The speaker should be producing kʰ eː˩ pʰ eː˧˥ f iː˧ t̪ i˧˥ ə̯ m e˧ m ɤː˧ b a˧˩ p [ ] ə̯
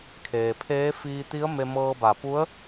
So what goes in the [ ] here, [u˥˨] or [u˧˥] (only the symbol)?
u˧˥